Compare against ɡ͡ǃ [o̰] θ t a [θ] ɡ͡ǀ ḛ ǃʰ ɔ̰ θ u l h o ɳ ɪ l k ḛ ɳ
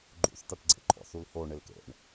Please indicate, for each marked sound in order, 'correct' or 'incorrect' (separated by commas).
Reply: incorrect, incorrect